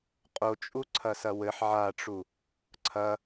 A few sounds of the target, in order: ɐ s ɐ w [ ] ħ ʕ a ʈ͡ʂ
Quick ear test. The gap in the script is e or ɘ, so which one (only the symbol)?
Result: ɘ